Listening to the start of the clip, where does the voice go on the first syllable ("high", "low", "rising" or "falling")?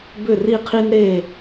falling